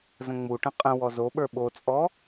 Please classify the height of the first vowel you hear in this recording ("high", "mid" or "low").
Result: mid